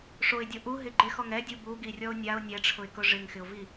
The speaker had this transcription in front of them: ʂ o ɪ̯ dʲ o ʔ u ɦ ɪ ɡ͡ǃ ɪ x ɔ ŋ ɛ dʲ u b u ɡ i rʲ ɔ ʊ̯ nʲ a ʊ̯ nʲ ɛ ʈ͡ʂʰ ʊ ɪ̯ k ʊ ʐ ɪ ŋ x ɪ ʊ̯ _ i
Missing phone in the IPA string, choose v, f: v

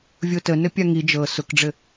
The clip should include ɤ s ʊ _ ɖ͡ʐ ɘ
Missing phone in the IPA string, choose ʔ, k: k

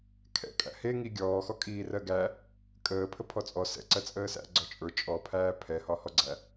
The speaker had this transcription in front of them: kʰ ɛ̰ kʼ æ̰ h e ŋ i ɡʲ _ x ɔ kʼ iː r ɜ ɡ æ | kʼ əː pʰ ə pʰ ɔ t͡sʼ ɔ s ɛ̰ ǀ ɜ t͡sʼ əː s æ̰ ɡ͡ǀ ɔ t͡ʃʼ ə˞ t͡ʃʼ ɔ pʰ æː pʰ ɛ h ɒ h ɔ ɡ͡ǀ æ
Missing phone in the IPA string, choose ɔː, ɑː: ɔː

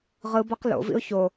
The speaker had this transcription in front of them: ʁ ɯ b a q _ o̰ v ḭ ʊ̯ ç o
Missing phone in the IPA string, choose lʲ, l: l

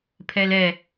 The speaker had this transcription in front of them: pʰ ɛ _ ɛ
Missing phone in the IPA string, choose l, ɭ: l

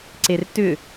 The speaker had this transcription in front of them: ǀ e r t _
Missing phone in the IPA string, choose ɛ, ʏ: ʏ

